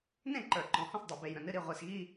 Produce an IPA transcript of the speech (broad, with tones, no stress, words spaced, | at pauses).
nẽ˥˩ ǃə˞˨˩ǃɔ̃˩˧hɔ̃˥˩s dˤe˨˩be˨˩jɾə̃˨˩nɨ˥˧ ɾi˥˩ʁʷe˨˩sɣi˥˧